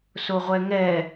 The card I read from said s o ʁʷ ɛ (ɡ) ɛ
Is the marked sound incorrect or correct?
incorrect